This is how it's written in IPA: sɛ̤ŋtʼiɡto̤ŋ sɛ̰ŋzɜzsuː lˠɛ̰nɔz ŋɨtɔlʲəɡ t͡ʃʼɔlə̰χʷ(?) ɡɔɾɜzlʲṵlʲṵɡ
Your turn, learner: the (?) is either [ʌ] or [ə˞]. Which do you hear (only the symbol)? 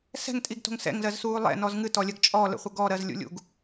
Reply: ʌ